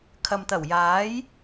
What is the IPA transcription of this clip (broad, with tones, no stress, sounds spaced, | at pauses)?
kʰ ɐ˨ m t̪ ɐ˨˩ w j aː˨˥ j